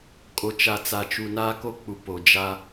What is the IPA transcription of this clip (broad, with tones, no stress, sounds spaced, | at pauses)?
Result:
kʼ o˨ t͡ʃ a˨ t͡s a˨ t͡ʃ u˨ n aː˦ k o˦ k͡p u˨ p o˨ d͡ʒ a˦